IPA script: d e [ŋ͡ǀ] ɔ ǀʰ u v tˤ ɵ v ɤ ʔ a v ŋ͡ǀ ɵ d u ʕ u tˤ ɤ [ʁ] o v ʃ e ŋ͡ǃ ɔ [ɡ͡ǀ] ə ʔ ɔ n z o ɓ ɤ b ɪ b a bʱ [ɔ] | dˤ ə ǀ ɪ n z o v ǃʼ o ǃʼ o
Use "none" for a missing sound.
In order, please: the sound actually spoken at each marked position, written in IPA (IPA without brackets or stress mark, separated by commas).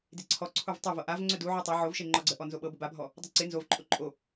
ǀʰ, ʕ, ɡ͡ǀ, ɔ